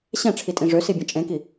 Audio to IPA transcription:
ɕɛ̃ʈ͡ʂʰitʼĩ ʐøsibʲɐ̃ t͡ʃʼẽki

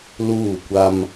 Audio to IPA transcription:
luː˦˨kʷa˦m

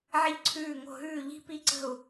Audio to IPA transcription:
ʕɪ˧ʎǀʰʉː˧˩ŋo̤˧˩ɦʉː˧˩ ʎi̤˧pi˧˩ǀə̤˧˩u̯

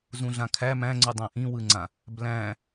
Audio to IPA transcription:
zũɮãkʰæ mæ̃ŋ͡ǀɯ dˤæ̃ʔĩwɯŋ͡ǀã | blæ̃

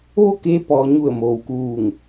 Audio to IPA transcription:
ʋo˥˨keː˧ pɔː˩ ɲu˧˩ə̯moː˩wkuː˧˩ŋ

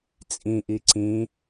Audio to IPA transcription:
t͡sʼĩʔi ǀĩ

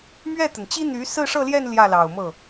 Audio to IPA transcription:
mɥɛ˥˩t̪ə˩nt͡ɕi˥n̪y˧˥ sɹ̩˥˧ʂɤ˥˧ljɛ˥˧n ljä˥˩lɑ˨˩ʊ̯mɤ˥˩

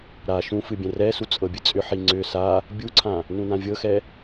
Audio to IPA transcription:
ɾa ʃũ fɨbʲɛ̃rɛsu t͡sʼɤbʲɨt͡sʼʏħi ŋ͡ǀʏ sa | bʲuǀʰã | nũnãvʲɤxɛ

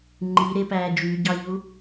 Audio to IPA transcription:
ŋ͡ǃiɾepæː d͡ʒyɟɑʎu

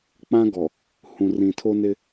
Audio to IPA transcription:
k͡pã˦ɡɔ˨ | hũ˨rĩ˨tʰo˦nɪ˦

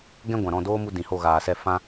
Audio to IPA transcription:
ɡɛ̃˦ɡʷã˨ɾɔ̃˦˨ doː˦ mu˧ dĩ˨ho˦˨ɣaː˨sɛ˦˨ fã˦

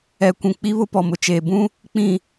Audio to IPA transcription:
ɛ˨kʷũ˨ k͡pi˦βʊ˦ pɔ˨mʊ˨t͡ʃeː˨ bũ˦ | k͡pĩ˨

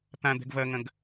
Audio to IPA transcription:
t̪ãd̪ɛ̤ɡ vɐŋɐ̃ɡ

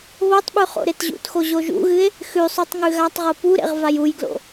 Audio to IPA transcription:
βotˤɓʉ χo̰ɾetʑṵtxo ʑoʒṵɣɨe̯ | xʉsˤʉtˤ ŋʉɣatˤʁo puɾḛʁ vajujɡlo̰

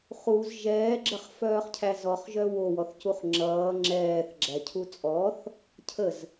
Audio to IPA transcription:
χuz ʒɛːɡ͡ǁəχfœːχcʰæ zɔχʒœ wowɔθcuχ ŋ͡ǁʌː ŋ͡ǁɛːθɡ͡ǁæcʰu t͡sʼɔθ | cʰəz

